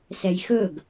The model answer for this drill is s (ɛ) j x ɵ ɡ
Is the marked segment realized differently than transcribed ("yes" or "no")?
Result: no